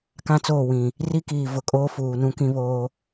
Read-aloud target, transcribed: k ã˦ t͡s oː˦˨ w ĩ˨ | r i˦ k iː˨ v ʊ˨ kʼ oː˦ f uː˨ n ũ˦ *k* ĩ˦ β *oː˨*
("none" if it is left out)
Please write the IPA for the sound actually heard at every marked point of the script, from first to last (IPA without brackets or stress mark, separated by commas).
k, oː˦